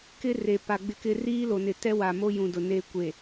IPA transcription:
k ɪ˦ r e˨ p a˨ ɡ͡b ɪ˦ k ɪ˦ r iː˦ l o˨ n ɪ˨ t ɛ˦ w a˨ m o˦ j ũ˨ d ʊ˨ n e˦ kʷ e˨

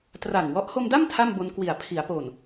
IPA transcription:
t r a˨˩ ŋ w ɔ˦˥ ʔ h o˧ m d a˥˩ m tʰ a˥˩ m b o˧ n k w i˨˩ a̯ pʰ i˩˦ a̯ p oː˨˩ n

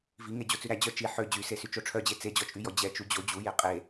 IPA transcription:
v i ŋ e d͡ʑ o t͡s ʉ ɾ æ d͡ʑ œ t͡ʃ i ħ ø d͡ʑ y s e s y t͡ʃ o ʈ͡ʂʰ œ d͡ʑ e t͡s e d͡ʑ ɔ t͡ʃʼ y j ɔ d͡ʑ ɛ t͡ʃ u d͡ʑ o d͡ʑ u j e qʼ e

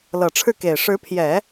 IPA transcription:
l ɤ˨˩ ʈ͡ʂʰ ɻ̩˥˩ k e˨˩ ɪ̯ ʂ ɻ̩˧˥ pʰ j ɛ˨˩˦

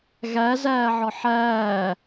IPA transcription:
ɣ æ z æː ʕ ɒ ħ æː

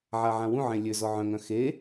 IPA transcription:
ʕ a ʕ ã w ũ ʕ ẽ lʲ ø z ɔ ʕ œ̃ ŋ œ̃ x e

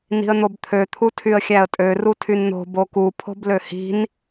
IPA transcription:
n i̤ ə̯ n̪ o b t̪ʰ ø t̪ʰ u tʰ y ə̯ xʲ æ ə̯ tʼ ø r u tʰ y n n̪ o̤ b o k u pʰ o̤ b l ø h i̤ n

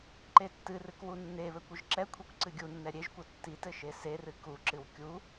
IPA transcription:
ǃ e tː ɨ r ɨ k w u nː e β ɘ kʷ ɨ ʒ ǁ ɛ kʷʰ e kʷ ǀ ɨ ɡʲ u nː ɛ ɾʲ e ʒ kʷ ɘ tː i t ɘ ʃ e s e r ɨ k u ǁ ɨ w kʲ u

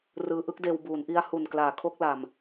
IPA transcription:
r ɯː˧ ʔ ɯ˥˩ k̚ d eː˧ w b uː˩˦ n ʔ i˦˥ a̯ h u˨˩ n k l aː˩˦ kʰ o˦˥ k̚ l a˨˩ m

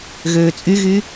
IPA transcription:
ɣ øː t͡sʼ y ɣ y

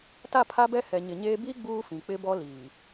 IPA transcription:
t a˦˨ pʰ a˦ b ɛ˦ h ɛ˨ ɲ ɪ˨ ɲ eː˦ b i˦ ɡ͡b uː˦ f ĩ˨ k͡p ɪ˦ b ɔ˦ l iː˨

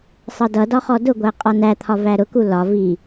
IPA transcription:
sˤ ʌ d ʌ d ɒ χ ɔ d ʊ ɡʷ æ qʼ ɒ n æ t̪ʰ ɒ v æ ɾ ʊ k u l ɒ v i

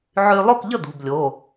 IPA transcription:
ʕ y˧ lˠ o˥˨ k ʎ ə˥˨ d̪ ṳ˩˧˩ b lʲ o˩˧˩

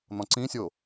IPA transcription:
n̪ ɔ̃ ǀ ĩ sʲ o

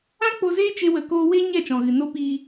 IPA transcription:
ã˦ k͡p o˧ z eː˦ t͡ʃ e˦ w ə˧ k oː˦ w e˦ ɲ ɛ˦˨ t͡ʃ ɔ̃˨ ɣ ɨ˨ n o˧ p iː˧

